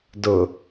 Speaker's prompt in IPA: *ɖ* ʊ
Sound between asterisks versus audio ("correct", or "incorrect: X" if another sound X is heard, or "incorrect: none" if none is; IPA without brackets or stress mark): incorrect: d